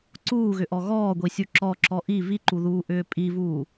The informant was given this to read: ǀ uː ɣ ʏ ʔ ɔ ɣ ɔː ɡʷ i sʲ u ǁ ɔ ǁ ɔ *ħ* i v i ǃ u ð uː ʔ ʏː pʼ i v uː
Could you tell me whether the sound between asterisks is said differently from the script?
yes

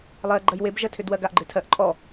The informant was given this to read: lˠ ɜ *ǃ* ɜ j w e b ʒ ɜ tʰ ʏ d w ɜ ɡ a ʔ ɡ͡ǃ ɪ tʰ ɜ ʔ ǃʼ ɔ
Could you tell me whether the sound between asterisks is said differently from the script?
yes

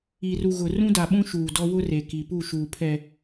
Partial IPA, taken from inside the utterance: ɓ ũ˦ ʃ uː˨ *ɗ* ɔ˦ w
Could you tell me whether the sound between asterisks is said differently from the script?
yes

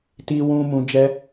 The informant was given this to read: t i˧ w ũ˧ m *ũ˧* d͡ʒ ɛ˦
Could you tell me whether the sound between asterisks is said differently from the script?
no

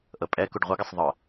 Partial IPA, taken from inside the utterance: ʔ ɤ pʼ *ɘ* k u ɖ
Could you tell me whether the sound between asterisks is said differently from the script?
yes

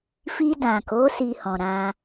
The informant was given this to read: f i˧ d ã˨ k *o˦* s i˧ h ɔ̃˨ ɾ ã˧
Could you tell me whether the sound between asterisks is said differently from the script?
yes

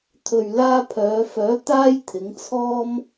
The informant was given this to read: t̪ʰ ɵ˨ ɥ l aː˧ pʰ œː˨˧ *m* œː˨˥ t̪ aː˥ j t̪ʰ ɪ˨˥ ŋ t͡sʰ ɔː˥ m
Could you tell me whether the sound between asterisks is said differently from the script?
yes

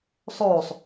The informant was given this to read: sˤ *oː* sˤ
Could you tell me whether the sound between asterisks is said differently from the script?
no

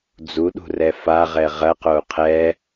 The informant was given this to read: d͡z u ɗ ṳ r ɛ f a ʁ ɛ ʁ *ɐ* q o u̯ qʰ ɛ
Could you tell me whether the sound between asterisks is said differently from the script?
no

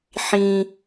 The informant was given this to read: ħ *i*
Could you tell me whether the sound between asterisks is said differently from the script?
yes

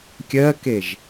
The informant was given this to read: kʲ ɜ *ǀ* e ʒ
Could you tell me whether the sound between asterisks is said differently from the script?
yes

